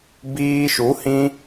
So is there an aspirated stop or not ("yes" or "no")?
no